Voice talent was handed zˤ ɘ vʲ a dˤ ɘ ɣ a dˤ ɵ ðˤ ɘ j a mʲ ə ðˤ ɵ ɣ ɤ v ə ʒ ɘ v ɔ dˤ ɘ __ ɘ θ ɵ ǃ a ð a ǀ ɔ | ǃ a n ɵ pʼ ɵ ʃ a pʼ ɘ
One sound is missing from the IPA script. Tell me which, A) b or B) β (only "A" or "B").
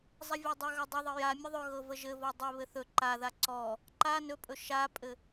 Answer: B